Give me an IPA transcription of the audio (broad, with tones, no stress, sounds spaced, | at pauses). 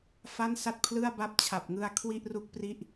f a˥˩ n s a˥˩ t̚ pʰ l ɯ˥˩ a̯ b a˥˩ p̚ t͡ɕʰ a˨˩ p̚ ŋ ɯ˧ a̯ kʰ w i˥˩ ʔ r u˥˩ k̚ p r i˥˩ ʔ